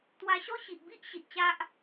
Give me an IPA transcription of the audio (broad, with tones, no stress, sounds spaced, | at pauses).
t̪ w a˧ ɕ ɔ˦ ɕ i˨ ʔ b i˦ ʔ ɕ i˨ t̚ t͡ɕ a˦ ʔ